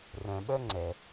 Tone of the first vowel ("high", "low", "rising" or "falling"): low